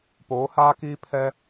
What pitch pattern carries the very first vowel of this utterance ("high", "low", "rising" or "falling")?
rising